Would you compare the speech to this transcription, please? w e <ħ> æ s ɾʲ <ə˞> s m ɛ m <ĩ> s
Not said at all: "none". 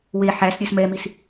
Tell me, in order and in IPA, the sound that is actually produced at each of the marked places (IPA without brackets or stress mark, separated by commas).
ħ, ə˞, i